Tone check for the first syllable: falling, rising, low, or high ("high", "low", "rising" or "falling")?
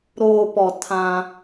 low